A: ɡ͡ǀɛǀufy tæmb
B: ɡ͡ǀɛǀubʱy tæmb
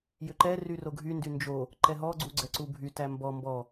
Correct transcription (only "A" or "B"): B